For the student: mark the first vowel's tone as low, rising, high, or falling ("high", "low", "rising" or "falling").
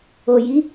low